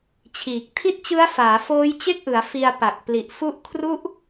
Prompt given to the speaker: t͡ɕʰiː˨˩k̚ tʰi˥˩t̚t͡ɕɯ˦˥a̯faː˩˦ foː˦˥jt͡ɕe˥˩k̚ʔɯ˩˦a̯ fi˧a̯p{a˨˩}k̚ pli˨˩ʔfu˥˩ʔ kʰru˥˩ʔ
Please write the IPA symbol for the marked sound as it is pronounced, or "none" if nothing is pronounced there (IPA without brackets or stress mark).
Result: a˨˩